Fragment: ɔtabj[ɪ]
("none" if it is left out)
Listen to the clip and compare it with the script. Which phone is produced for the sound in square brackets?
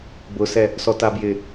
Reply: ɪ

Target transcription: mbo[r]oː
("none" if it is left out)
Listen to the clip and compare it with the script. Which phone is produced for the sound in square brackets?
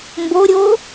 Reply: ɾʲ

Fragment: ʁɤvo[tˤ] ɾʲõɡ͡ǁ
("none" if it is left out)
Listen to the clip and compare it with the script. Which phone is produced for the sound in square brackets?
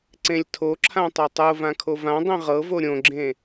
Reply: none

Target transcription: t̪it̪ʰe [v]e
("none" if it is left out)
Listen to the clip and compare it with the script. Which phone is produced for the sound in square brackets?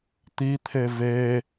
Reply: v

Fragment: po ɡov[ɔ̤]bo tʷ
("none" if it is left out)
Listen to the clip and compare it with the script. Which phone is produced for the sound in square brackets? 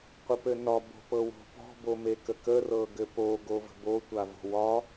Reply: ə̤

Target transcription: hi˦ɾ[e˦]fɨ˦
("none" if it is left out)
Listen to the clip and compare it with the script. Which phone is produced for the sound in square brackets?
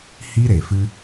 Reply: e˨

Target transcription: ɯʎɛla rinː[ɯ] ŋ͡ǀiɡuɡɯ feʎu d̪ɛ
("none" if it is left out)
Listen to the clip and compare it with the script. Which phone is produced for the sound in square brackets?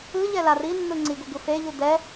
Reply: ɯ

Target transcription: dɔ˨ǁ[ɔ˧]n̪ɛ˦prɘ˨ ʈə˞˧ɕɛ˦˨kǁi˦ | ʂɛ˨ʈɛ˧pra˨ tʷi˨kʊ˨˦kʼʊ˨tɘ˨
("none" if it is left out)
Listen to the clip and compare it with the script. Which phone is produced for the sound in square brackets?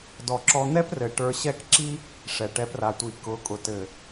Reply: ɔ˧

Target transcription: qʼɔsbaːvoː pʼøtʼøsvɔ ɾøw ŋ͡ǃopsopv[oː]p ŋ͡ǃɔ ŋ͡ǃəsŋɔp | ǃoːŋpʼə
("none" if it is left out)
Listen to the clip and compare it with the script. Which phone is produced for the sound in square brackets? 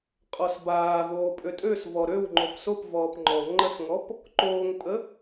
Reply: ɔː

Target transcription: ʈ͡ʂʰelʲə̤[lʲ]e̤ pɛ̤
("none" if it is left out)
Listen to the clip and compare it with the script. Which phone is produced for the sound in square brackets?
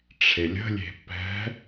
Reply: lʲ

